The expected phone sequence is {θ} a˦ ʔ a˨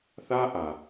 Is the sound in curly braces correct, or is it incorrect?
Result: correct